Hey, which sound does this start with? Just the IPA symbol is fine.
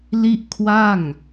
l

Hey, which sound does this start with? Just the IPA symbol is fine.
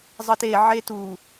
zˤ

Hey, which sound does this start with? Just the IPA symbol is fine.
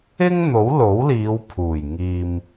ɪ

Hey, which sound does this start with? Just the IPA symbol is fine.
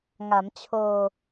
ŋ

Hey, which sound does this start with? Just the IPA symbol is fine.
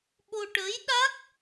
ɓ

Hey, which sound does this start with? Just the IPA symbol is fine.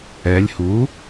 ɛ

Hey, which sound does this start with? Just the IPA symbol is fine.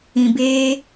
ĩ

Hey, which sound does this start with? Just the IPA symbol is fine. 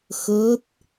x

